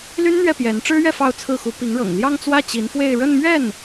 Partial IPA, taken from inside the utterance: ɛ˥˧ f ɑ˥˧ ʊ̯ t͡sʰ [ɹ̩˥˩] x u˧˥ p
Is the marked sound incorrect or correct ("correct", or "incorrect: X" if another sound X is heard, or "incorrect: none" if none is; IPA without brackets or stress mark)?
correct